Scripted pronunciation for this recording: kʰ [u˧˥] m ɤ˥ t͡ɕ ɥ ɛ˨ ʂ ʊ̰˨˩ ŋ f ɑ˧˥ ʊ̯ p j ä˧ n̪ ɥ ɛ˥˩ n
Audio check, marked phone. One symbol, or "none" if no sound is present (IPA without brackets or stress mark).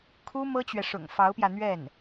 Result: u˥